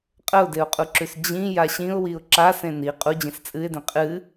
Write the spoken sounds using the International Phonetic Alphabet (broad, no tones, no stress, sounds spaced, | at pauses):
qʼ ə ʊ̯ d e ʊ̯ qʼ u ǁ ʉ s d͡ʑ ĩ j a ɕ ĩ ʊ̯ w i ʊ̯ ǁ a s ẽ n i qʼ u d͡ʑ ĩ s t͡sʼ ɨ ɪ̯ d ẽ qʼ ɨ